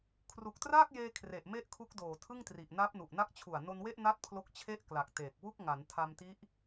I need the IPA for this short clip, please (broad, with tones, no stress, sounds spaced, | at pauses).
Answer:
kʰ r u˨˩ k̚ t r aː˥˩ k̚ j eː˧ kʰ r e˨˩ ʔ m e˥˩ ʔ kʰ u˦˥ k̚ d oː˨˩ tʰ ɯ˥˩ ŋ t r i˨˩ ʔ n a˦˥ p̚ n u˨˩ ʔ n a˦˥ k̚ t͡ɕʰ u˨˩ a̯ n o˧ n w e˥˩ ʔ n a˥˩ t̚ pʰ l o˦˥ k̚ t͡ɕʰ e˥˩ ʔ k l a˨˩ k̚ t e˨˩ k̚ w u˥˩ k̚ ŋ a˩˦ n tʰ a˧ m t i˦˥ ʔ